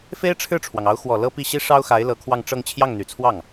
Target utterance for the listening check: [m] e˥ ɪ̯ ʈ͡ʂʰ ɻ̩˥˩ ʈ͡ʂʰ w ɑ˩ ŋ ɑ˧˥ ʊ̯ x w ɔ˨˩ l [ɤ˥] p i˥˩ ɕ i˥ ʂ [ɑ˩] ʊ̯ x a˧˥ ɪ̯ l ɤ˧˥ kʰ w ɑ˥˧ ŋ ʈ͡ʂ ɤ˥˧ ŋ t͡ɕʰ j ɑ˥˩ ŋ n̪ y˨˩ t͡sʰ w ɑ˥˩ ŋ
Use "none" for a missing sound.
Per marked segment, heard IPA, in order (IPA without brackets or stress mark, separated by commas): f, ɤ˥, ɑ˥